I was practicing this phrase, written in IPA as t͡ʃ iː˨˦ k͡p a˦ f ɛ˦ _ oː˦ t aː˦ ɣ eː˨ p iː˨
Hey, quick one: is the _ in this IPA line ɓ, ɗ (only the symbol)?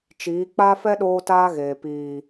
ɗ